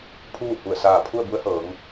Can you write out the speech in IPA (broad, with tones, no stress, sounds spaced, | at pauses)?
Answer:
pʰ uː˥˨ h u˧˩ ə̯ s aː˧˩ pʰ u˥˨ ə̯ b u˧˥ ə̯ h ɤː˩˧ ŋ